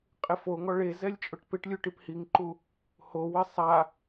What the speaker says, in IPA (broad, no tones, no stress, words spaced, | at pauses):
qʼɪfoŋɔ ɭe zɛlʲt͡ʃʼʊʈpɪʈlʲu ʈiphiŋǃu | howɪ sˤa